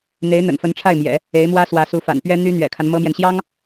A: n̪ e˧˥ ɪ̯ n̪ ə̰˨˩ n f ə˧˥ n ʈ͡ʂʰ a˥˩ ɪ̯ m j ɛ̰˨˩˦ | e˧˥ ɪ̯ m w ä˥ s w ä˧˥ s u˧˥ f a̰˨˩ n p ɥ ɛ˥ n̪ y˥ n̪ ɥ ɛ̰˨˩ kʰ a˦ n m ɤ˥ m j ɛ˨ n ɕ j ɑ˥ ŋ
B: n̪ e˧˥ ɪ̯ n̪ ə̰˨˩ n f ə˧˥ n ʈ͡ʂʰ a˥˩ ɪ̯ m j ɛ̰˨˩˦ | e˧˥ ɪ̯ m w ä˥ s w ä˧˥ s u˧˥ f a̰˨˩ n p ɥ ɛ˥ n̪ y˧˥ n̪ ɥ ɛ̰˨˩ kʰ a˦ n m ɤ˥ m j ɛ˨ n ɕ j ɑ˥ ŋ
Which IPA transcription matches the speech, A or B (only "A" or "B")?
A